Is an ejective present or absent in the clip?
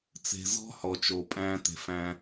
present